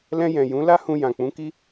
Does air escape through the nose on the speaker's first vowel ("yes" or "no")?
yes